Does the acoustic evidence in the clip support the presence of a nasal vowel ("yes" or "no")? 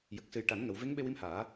no